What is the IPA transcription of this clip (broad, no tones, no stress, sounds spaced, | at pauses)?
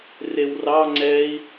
r e w r ɑ ŋ͡ǀ ɛ i̯